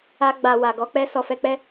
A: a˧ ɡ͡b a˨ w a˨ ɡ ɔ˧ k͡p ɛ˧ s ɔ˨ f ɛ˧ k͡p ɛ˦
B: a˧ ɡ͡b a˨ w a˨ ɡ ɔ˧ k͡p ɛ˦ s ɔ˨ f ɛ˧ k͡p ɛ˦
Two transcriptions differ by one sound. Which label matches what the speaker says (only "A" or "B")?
A